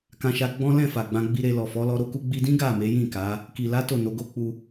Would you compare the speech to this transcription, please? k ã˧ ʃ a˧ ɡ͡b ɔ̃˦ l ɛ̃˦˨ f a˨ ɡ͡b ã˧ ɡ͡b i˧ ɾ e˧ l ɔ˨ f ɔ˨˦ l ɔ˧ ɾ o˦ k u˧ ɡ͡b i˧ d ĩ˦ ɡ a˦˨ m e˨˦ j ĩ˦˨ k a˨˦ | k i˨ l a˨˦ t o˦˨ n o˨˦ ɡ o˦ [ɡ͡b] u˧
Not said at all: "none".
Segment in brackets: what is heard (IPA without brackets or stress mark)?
k͡p